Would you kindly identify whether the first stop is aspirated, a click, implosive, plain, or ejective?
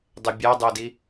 plain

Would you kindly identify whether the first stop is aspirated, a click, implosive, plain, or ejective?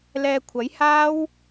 aspirated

